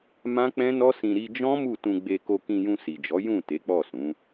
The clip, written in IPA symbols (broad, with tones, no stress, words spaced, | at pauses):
mã˦ k͡pɛ̃˦nɔ˦sĩ˧ ɾi˧d͡ʒɔ̃˦ mu˦˨tũ˧ɡ͡be˧ko˧ kĩ˧jũ˧si˨d͡ʒɔ˨˦ jũ˦˨ te˨˦k͡pɔ˦˨sũ˨˦